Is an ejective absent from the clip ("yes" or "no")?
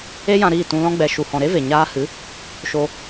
yes